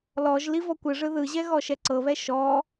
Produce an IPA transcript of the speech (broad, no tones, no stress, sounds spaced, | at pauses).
l ɔ ʒ l i v ɔ kʷ ɯ ʐ ɯ ð ɯ ʑ ɛ ɣ ɔ ʃ ɛ ǀ ɤ β ɛ ʃ ɔ